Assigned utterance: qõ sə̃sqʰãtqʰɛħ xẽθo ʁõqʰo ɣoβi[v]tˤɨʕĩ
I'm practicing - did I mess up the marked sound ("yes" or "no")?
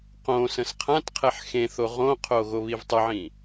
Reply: no